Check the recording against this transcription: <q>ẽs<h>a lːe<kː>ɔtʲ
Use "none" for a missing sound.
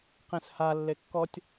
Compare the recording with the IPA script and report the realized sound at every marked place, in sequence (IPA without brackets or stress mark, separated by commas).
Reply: q, h, kː